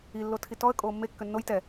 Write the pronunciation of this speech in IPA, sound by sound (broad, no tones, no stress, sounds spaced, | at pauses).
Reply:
i lː o tʰ i t ɔ ə̯ kʼ oː mː e kː ø nː o j t ɛ